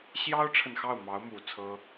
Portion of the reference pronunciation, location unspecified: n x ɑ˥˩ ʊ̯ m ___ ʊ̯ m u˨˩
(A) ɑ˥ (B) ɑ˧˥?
B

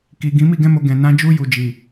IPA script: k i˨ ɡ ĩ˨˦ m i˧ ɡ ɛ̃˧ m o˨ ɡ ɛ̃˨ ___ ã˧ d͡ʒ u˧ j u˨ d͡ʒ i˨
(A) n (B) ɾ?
A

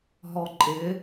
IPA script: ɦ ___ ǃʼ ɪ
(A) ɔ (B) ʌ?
A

